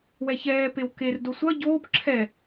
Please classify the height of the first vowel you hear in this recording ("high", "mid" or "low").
mid